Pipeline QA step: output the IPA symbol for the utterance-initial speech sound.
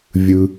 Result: vʲ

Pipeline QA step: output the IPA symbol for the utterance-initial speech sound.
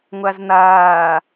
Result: ŋʷ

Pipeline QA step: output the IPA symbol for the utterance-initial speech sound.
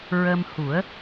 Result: ɹ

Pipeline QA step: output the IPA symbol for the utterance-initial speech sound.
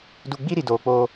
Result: d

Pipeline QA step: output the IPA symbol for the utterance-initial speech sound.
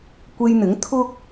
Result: kʷ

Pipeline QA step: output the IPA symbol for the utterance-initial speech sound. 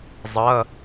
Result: zˤ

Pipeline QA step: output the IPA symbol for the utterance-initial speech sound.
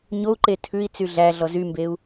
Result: ɲ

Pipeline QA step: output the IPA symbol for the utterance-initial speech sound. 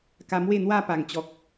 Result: k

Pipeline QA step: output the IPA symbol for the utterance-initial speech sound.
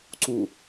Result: ǀ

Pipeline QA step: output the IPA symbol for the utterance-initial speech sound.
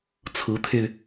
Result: t͡sʰ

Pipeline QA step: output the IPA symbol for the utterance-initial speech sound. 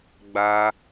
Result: ɡ͡b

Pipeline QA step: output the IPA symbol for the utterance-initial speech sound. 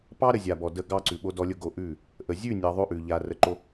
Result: p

